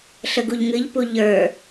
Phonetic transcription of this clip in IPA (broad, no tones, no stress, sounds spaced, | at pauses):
ɬ ə ɡ u ʎ ŋ ɨ ʎ p u ʎ ə˞